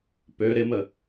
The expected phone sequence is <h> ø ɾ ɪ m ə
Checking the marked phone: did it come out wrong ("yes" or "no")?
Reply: yes